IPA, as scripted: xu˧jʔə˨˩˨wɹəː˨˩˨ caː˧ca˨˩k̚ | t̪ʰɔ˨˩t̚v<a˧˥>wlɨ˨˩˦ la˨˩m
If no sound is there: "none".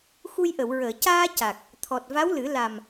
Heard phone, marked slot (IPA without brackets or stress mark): a˧˥